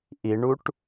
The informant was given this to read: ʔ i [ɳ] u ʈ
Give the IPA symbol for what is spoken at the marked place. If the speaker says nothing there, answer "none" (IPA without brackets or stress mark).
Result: ɳ